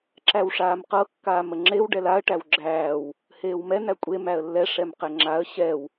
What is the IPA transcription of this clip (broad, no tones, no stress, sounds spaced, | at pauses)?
ǁ æ w ʂ aː m q ɤ kː aː m ə ŋ͡ǁ e w ɖ ɛ l a ə̯ ʈ æ w ɡ͡ǁ æː w | h eː w m ɛ n̪ æ kʷʼ e m æ ə̯ lː ɛ ʂ ɛ m q ɛ ŋ͡ǁ a ə̯ ɕ ɛ w